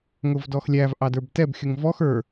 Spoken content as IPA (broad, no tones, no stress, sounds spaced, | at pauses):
ŋ ʊ v d ɔ x lʲ æ v ʔ ɑ d ə˞ b t ɛ b xʲ ʊ ŋ v ɔ x ə˞